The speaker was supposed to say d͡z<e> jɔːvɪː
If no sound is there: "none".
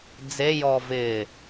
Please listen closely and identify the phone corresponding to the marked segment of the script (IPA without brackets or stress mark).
e